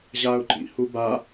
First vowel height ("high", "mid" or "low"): low